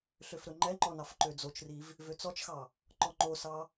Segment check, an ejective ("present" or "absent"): absent